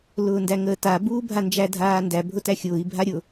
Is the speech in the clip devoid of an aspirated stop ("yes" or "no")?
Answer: yes